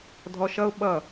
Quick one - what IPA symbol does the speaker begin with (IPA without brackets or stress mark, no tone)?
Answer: dʱ